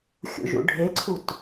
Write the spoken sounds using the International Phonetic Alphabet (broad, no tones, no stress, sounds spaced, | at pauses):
xʲ ṵ ʒ ṵ ɖʱ e ǀʰ u t